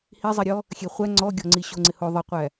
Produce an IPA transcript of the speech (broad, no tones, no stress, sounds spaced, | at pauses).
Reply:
h i zˤ i ɾʲ ɔ | xʲ e χʷ æ ŋ͡ǀ ɔ ɡʲ ɔ ŋ͡ǀ i ɕ o ŋ͡ǀ ɪ h o ðˤ ɪ qʷ æ